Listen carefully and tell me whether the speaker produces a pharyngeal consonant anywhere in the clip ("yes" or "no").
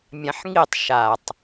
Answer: yes